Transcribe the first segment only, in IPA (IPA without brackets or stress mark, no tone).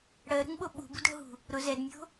ɽ